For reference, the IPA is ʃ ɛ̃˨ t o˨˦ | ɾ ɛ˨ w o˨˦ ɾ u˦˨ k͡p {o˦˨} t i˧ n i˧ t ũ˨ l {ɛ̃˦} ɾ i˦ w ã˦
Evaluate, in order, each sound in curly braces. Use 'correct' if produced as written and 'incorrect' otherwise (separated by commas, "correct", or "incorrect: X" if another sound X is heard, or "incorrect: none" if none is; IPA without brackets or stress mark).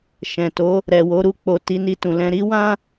incorrect: o˧, incorrect: ɛ̃˧